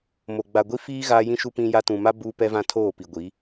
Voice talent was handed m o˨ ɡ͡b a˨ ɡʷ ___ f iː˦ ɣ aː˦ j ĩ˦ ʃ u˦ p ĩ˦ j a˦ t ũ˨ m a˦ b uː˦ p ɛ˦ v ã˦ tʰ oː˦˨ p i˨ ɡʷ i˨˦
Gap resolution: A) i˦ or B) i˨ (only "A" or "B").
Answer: A